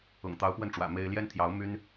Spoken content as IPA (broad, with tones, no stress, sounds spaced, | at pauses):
ʊ̰˨˩ ŋ t̪ ɑ˧˥ ʊ̯ p w ə˥˩ n ʈ͡ʂ w ä̰˨˩ m e˥ ɪ̯ l j ɛ˥ n t̪ʰ j ɑ˧˥ ʊ̯ m y˥ n